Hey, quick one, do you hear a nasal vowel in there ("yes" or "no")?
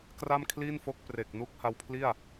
no